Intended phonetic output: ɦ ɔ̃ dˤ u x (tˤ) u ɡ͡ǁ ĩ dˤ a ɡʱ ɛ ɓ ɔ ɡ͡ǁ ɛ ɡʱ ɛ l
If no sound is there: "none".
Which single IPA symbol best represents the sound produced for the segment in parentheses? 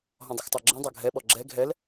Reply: tˤ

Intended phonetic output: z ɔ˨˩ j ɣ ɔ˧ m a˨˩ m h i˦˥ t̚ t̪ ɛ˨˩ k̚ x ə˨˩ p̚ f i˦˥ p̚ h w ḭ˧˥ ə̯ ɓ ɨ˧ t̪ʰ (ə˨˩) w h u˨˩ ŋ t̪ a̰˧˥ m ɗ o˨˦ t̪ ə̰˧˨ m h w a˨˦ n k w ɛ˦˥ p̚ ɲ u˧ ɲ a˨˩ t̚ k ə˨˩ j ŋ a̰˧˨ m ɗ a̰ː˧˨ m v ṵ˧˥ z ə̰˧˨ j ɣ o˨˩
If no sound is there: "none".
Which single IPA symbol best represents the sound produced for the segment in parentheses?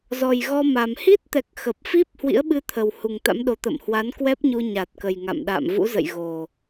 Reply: ə˨˩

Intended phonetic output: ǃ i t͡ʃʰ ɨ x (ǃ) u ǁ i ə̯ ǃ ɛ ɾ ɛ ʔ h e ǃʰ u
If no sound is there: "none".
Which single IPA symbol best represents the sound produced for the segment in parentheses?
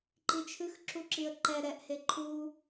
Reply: ǁ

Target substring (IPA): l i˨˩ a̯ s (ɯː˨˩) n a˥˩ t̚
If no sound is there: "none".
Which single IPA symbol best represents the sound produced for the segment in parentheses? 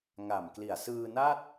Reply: ɯː˧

